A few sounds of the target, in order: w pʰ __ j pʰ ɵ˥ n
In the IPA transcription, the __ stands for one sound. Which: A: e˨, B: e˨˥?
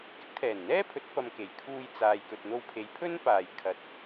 A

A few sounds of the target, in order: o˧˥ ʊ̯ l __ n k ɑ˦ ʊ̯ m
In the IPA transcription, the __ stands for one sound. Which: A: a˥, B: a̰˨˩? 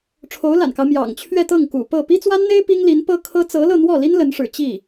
B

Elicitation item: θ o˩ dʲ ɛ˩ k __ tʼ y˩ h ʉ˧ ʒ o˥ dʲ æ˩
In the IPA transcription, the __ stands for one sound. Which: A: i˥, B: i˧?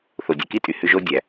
A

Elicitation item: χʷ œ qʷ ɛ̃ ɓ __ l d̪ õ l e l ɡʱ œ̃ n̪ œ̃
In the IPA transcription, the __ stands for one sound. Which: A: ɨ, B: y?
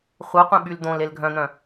B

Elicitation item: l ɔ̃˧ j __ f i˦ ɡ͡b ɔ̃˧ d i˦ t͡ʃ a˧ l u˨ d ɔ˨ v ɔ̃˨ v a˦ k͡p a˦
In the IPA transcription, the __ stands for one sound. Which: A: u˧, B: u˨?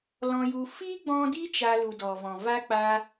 A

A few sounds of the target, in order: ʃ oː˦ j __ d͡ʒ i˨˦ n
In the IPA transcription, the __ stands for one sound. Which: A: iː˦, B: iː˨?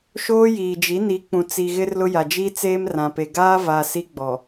B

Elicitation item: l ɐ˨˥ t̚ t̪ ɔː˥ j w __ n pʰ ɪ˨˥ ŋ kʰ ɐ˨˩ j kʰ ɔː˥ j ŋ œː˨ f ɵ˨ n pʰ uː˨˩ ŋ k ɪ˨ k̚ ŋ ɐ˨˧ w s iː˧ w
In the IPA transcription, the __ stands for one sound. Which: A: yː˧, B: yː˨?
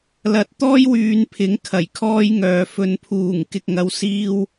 A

